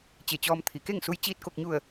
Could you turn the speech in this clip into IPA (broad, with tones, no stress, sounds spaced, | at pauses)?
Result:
t͡ɕ e˧˩ t͡ɕ ɔː˧ m t̪ʰ i˩˧ k e˥˨ ŋ s u˧˥ j t͡ɕ iː˧˩ t̚ k o˧˩ k̚ ɲ u˧˩ ə̯